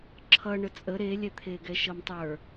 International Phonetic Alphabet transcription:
ǁʰʌ ɳət͡sʼə ɾelʲɛt̪ʰeɡɛ ʃʌmtˤə˞

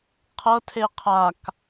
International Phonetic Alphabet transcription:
qʰɤtʰe qʰak

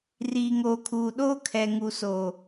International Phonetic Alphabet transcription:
riː˨ŋoː˨kʰuː˨ɗoː˦ kʰɛ˨ŋu˨soː˨

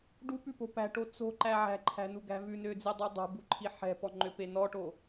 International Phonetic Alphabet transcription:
ɖupʉpo̤ pæ̤ʈo t͡so̤ǃæ ʕæ̤ǃʰæ̤nuɡæ̤ vʉnød͡zidˤy dˤo̤buǃʰi ħɛ̤pɔŋ͡ǃøpe nɔʈo

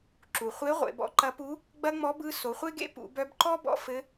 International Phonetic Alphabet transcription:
ǁu˩χʷe˧˥ʁʷḛ˩˧ bɔ̰˧ǃɐ˧˥pu˧˥ | ɡ͡bɐ˥ŋ͡mɔ˧˥bɯ˧˥ so˩˧χʷe˥ɡḛ˥ pṵ˩˧bœ˧bǃɔ˥bɔ̰˧ fɘ˧˥

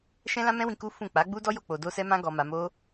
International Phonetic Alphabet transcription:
ʃɛ̃˦lã˦mɛ̃˦wĩ˧ ku˦fũ˦˨ k͡pa˨˦ ɡ͡bu˦ dɔ˦jo˦˨ k͡po˧do˦ sɛ˦mã˦ ɡɔ˦ma˦ mo˦

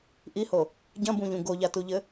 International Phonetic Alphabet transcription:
ʔiho | ɟɐ̃bũʎũ ɡoʎatuʎɘ

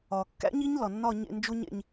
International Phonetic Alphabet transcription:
ɒ˩ kːæ̰˦˥ɲi˦˥ɲ lɒ˩nːɒ˦˨ ɲḛ˦˨nd͡ʒo˦˥ɲḛ˦˨ɲ

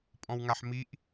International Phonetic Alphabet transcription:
pʼɔ̃wŋaħmiʔ

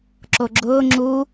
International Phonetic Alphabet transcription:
ǁoɡ͡ǁʊː ŋ͡ǁu

